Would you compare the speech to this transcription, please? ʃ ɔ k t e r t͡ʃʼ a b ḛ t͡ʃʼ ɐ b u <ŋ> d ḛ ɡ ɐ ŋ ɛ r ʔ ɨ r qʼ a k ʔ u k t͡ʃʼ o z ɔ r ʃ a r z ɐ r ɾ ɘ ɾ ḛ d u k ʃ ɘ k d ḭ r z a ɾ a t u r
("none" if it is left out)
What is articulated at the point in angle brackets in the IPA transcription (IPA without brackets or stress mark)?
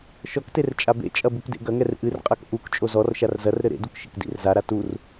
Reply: k